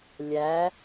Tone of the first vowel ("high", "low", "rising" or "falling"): rising